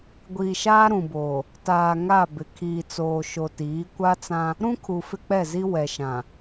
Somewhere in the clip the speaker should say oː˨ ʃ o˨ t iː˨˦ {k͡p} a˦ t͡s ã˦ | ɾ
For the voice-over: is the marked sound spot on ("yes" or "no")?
no